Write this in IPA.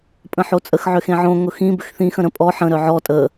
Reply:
pʼ ə̃ ħ o t͡sʼ ə x ʕ ʏ x ẽ ʕ õ ŋ ʊ x ĩ b ʏ x θ ĩ x ə̃ ɾ ə̃ pʼ ɔ ħ ə̃ ɾ œ ʕ ɔ tʼ ə

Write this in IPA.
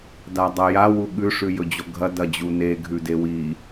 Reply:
d a dˤ ɐ j a w u ɠ ʉ ʂ ʉ j ɵ d͡ʑ o ɡʱ ɐ d ɐ d͡ʑ u n e ɡʱ ʉ d e w i

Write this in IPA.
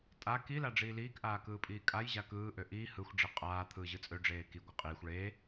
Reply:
tʼ a k i l a ɖ͡ʐ iː l iː k ʔ aː k ɯː pʼ iː kʼ a j ʑ a k ɯː ʔ ø ʔ iː h ɯ xʷ ɖ͡ʐ i qʼ aː t̪ʰ ɯː ʑ ɯ t͡sʼ ø ɖ͡ʐ eː k i ɡʷ ɯ qʼ iː xʷ ɭ eː

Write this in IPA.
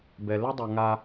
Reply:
b ɛ˩ l ə˥ dˤ ʊ˩ ŋ a˨

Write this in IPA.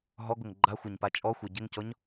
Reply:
ɦ ɔ ɡ ʊ ŋ ɡ͡ǃ a xʷ ɛ ɲ p a t͡ʃʼ ɔ xʷ e ɟ ɪ ŋ c ɔ ɲ

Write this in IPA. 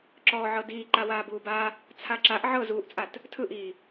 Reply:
ǁ ɔː ʕ ɤ d iː ǃ a w aː b uː b a | t͡sʰ a ǁ a ʔ ʕ ɤ z uː ʔ t͡sʼ a t | tʰ ɯ ʔ iː

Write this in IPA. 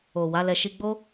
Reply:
o˨ w a˨˦ l ɛ˧ ʃ i˧ ɡ͡b o˦

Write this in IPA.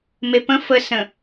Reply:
m e p ə̃ f ə s ə̃

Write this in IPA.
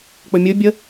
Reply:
k͡p ɵ mʲ ɵ bʲ ə

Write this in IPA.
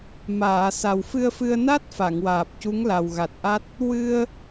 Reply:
m aː˨˩˨ s a˨˩ w f ɨ˧ ə̯ f ɨ˧ ə̯ n a˦˥ t̚ f a˨˩˨ ŋ w aː˨˩ p̚ c u˧˥ ŋ l a˨˩ w ɣ a˨˩ t̚ ʔ a˦˥ t̚ | w ɨ˧ ə̯

